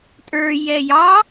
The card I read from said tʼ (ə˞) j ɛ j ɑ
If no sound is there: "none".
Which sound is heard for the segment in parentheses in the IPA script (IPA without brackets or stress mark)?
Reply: ə˞